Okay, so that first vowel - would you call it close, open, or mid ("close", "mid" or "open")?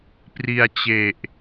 close